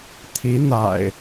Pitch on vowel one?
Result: rising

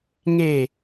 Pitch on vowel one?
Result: falling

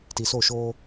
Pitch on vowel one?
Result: low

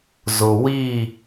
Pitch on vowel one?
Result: low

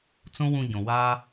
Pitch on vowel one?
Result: high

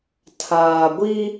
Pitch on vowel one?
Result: low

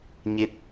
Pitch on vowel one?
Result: rising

